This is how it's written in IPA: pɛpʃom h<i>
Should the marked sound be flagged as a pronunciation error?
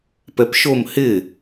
yes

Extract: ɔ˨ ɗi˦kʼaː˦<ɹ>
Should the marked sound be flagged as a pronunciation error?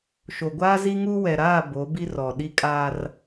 yes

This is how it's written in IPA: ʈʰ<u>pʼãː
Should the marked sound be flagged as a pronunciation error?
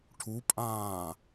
no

